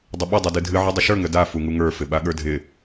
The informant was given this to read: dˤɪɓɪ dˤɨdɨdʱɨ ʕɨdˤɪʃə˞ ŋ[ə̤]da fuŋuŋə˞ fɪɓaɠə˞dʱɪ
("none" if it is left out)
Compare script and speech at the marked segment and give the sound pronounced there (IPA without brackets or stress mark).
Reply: ə